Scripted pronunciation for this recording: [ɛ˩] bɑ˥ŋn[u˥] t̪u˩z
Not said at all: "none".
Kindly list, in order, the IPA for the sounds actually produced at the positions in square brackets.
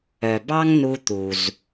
œ˩, u˧

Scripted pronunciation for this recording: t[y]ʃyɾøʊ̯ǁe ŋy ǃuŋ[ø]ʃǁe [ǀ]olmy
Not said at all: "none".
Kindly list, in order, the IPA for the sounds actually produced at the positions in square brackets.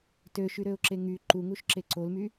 ø, u, ǀ

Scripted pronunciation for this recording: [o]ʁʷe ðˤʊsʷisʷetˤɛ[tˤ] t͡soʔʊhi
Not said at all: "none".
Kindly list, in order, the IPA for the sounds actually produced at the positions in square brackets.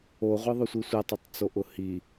o, tˤ

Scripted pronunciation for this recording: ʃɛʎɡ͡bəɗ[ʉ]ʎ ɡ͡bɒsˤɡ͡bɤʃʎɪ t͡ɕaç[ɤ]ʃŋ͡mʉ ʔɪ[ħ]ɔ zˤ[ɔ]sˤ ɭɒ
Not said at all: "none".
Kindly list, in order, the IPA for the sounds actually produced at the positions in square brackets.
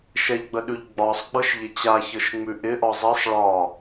ʉ, ɤ, ʔ, ɤ

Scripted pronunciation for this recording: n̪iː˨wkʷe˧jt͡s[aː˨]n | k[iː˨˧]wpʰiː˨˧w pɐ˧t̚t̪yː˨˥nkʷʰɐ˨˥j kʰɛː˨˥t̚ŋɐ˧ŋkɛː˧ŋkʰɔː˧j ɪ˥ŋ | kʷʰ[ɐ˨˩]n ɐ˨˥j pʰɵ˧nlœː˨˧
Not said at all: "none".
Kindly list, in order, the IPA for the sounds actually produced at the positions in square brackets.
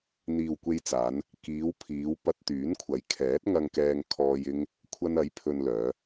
aː˨˧, iː˨˧, ɐ˧

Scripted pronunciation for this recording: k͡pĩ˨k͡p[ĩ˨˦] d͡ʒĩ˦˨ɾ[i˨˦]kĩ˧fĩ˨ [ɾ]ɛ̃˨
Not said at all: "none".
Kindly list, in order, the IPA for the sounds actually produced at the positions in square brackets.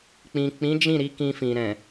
ĩ˨˦, i˨˦, ɾ

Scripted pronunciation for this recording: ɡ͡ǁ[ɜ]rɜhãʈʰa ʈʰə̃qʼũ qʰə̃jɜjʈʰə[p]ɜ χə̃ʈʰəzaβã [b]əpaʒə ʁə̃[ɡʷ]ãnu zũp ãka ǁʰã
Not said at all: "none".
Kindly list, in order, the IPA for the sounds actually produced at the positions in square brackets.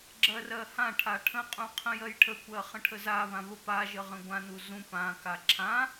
ɜ, kʷ, β, ɡʷ

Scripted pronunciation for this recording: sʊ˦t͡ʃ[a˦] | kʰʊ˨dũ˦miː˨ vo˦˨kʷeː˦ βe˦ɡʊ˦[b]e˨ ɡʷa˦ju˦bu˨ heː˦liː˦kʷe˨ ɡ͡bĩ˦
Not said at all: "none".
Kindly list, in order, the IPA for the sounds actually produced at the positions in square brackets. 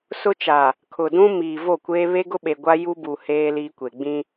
a˨, ɓ

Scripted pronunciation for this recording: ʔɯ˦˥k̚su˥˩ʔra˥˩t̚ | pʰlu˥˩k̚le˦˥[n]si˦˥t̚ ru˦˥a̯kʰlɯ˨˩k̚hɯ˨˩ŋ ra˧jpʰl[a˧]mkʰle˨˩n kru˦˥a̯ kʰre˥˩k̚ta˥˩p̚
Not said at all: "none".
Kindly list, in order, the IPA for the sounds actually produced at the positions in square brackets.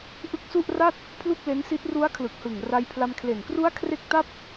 n, a˧

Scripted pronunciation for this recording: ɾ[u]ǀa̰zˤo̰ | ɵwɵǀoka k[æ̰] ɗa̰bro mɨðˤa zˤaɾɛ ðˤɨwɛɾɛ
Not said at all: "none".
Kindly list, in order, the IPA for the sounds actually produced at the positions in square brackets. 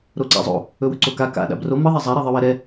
o, a̰

